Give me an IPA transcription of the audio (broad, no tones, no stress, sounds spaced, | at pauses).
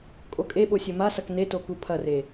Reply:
kʼ o kʼ e ɓ o sʲ ɵ m a s ɐ k n e t o k u pʰ ɐ r e